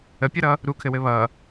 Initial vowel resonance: oral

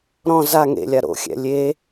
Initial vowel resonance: nasal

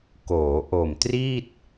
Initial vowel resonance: oral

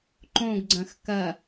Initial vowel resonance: nasal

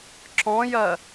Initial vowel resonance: nasal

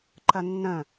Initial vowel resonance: oral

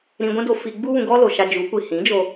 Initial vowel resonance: nasal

